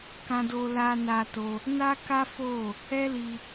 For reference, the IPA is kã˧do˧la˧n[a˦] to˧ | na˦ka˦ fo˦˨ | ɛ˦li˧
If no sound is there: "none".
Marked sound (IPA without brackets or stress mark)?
a˧